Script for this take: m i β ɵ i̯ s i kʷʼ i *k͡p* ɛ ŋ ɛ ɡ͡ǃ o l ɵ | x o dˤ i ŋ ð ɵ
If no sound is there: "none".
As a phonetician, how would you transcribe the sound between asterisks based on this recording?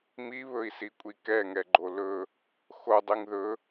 k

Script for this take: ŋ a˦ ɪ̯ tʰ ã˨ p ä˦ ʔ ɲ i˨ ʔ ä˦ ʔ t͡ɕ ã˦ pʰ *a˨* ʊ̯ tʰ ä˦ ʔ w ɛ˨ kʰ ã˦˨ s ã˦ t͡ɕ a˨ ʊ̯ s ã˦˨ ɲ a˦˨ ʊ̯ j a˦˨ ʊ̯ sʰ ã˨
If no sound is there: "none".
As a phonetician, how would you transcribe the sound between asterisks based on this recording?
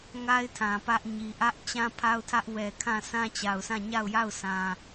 a˦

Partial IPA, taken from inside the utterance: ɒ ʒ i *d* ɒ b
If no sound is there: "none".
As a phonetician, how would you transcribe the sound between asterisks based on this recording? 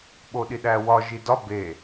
d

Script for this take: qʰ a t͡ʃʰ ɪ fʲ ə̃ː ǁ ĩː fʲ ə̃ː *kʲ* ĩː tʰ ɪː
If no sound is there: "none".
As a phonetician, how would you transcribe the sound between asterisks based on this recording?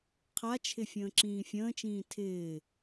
t͡ʃ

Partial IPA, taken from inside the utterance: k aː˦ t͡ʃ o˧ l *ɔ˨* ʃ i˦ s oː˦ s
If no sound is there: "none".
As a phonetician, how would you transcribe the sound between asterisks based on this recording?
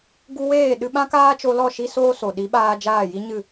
ɔ˦˨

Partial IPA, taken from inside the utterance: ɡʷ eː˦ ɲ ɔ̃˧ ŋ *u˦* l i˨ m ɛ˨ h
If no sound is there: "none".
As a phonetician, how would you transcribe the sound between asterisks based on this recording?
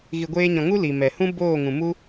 u˦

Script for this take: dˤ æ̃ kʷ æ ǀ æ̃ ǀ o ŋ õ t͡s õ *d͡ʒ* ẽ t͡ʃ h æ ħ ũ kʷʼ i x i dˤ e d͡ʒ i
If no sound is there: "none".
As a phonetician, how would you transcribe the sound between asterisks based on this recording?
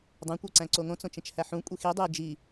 t͡ʃ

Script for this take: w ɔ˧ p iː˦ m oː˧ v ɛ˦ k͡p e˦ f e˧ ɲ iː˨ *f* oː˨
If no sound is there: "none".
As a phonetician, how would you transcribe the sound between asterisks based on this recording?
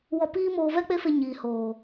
h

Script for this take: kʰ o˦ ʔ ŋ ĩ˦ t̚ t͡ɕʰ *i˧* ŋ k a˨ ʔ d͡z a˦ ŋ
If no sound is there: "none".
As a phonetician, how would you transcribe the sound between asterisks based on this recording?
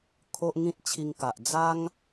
i˧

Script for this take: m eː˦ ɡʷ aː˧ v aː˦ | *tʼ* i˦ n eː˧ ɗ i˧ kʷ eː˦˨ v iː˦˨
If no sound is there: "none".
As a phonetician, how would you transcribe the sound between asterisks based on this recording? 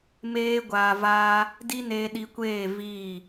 d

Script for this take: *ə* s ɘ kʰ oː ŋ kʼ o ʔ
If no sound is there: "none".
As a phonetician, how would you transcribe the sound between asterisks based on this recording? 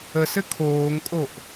ə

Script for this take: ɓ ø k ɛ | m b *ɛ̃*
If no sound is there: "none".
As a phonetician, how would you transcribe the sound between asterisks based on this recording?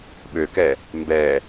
ɛ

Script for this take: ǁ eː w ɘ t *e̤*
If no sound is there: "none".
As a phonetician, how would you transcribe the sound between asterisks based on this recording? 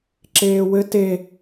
e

